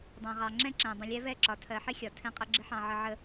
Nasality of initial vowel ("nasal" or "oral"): nasal